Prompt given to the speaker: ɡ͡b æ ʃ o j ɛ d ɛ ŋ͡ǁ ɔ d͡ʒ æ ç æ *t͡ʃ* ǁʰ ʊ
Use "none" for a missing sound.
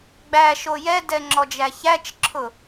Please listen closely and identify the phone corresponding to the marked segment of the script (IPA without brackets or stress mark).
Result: t͡ʃ